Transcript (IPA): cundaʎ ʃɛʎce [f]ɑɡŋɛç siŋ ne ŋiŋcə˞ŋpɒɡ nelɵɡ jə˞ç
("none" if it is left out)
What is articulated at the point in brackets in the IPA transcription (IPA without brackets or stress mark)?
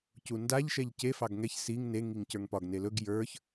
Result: f